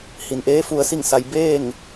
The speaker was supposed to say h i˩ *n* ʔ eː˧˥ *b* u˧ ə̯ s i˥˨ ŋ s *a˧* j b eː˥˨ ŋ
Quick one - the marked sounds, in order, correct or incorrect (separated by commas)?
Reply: correct, incorrect, correct